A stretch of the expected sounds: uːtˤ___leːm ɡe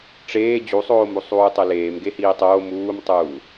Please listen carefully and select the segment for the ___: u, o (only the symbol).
o